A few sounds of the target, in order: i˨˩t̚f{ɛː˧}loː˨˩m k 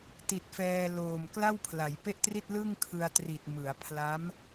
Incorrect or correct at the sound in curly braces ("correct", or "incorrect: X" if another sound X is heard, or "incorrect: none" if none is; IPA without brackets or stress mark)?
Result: correct